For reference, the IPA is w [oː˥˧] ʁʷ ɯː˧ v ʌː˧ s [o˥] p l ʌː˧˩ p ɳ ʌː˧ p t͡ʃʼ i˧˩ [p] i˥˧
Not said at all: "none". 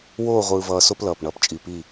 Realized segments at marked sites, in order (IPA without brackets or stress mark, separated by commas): oː˥˧, o˥, p